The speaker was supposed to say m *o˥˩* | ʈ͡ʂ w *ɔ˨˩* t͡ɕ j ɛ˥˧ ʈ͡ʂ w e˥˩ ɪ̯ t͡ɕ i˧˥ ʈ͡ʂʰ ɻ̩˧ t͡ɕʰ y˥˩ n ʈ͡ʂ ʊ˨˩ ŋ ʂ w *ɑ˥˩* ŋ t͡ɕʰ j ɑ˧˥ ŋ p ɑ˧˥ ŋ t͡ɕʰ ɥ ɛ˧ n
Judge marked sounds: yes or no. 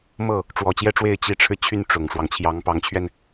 no, yes, no

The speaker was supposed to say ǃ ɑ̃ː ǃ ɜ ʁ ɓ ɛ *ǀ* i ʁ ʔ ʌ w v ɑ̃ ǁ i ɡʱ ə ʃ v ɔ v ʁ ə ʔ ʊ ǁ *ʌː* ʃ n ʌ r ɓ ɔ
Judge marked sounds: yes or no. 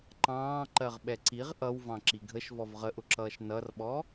yes, yes

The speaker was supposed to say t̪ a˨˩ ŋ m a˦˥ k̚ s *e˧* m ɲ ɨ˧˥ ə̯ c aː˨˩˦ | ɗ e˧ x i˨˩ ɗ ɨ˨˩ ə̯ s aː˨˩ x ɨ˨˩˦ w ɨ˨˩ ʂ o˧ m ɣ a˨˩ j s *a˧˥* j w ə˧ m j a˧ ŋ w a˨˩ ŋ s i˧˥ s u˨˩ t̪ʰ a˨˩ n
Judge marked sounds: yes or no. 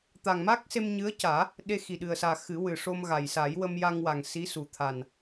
yes, no

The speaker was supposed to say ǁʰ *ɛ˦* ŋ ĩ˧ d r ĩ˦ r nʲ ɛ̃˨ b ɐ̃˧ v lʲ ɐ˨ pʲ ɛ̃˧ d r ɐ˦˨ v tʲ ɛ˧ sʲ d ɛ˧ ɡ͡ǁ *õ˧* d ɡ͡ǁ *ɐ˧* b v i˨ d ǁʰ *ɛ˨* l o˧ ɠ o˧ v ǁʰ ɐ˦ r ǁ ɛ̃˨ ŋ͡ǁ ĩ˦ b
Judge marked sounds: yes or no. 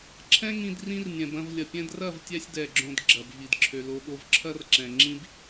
no, yes, no, no

